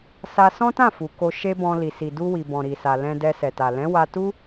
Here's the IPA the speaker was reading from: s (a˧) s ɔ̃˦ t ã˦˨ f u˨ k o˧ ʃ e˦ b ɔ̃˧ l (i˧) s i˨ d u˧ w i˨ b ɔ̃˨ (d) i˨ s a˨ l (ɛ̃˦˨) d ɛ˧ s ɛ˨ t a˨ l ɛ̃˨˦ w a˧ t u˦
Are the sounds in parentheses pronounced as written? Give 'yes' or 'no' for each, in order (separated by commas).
yes, no, no, no